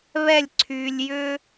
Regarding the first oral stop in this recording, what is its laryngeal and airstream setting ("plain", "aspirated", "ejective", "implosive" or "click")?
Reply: click